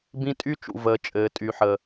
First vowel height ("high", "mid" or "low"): high